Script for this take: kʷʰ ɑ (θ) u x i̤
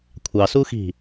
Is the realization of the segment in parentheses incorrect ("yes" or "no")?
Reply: yes